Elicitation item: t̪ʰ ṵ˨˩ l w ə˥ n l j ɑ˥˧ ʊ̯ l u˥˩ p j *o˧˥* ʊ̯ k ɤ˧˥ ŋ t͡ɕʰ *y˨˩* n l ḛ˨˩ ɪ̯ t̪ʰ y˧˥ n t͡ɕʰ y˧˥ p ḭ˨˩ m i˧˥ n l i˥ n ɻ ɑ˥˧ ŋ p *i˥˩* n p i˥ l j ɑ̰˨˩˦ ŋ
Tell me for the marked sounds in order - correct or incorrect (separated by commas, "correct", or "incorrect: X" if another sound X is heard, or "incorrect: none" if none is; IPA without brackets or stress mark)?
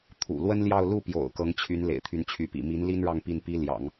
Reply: incorrect: o̰˨˩, incorrect: y˧˥, correct